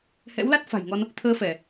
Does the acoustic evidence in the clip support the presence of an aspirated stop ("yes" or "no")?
yes